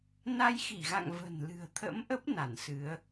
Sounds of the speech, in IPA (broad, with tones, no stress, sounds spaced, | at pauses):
n a˧ j x i˧˩ ɣ a̰˧˨ ŋ v ə̤˨˩ n l ɨ̤˨˩ ə̯ t̪ʰ ə̰˧˥ m ʔ ə˦˥ p̚ n a˧˩ n s ɨ˨˦ ə̯